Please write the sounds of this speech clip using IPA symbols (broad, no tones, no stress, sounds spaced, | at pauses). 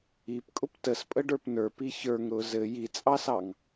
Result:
i p kʼ ʊ p t ə s pʼ ə ɖ ə˞ p n ə˞ p i ç ə˞ ŋ ɾ ʊ z ɘ j i t͡sʼ ɑ s ɑ ŋ